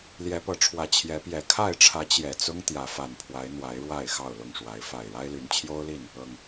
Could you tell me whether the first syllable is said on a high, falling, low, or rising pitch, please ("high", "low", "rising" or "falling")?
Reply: rising